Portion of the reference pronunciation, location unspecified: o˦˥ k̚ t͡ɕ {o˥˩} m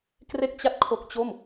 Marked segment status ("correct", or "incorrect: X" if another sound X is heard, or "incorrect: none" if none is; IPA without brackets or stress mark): correct